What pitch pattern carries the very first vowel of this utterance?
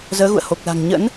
rising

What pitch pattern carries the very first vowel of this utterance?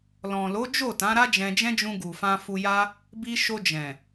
low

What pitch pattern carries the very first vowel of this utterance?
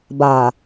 low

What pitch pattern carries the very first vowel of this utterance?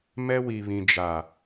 high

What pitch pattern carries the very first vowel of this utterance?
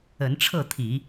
rising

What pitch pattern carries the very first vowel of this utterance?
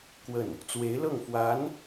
falling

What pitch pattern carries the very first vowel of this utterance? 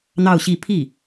falling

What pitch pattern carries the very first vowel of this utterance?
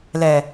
low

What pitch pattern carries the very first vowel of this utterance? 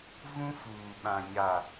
high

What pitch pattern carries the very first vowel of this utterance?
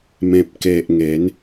low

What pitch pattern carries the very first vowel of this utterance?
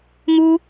high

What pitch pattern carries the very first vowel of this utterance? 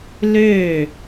falling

